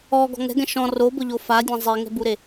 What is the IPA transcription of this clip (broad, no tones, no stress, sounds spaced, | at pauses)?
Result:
ɔ ɡ ɔ̤ ŋ ɛ̤ ɡ ɛ̃ ʃ ɔ̃ r o b ʊ ʎ o f a dʲ ã zˤ i ŋ ɛ̤ b u ɾ e